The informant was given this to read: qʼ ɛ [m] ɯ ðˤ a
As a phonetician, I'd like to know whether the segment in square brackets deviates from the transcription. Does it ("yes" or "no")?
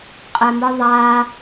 no